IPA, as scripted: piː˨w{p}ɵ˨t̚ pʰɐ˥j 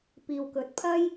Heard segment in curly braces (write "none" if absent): k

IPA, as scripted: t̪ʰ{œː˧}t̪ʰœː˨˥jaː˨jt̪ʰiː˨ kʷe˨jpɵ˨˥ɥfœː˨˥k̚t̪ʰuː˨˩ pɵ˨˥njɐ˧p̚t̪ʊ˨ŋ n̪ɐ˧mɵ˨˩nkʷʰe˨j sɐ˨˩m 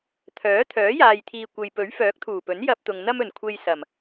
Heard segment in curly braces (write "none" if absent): œː˨˥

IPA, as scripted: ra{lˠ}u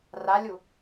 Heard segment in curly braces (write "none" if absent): lʲ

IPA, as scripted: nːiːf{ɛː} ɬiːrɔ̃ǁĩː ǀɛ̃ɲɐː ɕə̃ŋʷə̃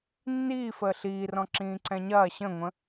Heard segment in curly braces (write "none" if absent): əː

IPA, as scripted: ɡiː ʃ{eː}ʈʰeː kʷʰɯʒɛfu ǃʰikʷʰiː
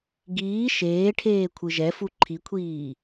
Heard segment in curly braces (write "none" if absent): eː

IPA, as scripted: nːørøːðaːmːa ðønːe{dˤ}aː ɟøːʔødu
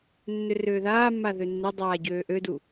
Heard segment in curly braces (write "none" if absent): dˤ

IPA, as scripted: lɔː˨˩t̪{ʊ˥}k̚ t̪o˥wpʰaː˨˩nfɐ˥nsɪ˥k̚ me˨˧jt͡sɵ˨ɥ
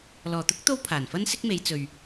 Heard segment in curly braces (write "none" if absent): ʊ˥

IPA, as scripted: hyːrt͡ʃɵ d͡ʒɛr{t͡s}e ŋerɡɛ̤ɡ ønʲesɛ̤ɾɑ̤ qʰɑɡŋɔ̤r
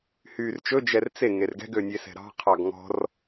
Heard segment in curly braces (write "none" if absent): t͡s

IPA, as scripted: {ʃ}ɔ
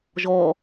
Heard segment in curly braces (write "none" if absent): ʒ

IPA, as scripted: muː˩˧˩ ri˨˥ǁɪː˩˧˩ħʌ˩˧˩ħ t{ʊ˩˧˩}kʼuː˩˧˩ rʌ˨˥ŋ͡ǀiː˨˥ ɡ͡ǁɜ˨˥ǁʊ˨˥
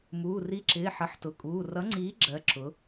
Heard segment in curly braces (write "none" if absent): ʊ˩˧˩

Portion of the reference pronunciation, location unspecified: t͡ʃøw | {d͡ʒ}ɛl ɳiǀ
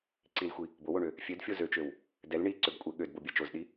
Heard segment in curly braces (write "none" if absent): d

